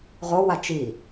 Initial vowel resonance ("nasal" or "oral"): oral